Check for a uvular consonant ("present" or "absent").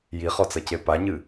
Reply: present